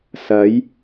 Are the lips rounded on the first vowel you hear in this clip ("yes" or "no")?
no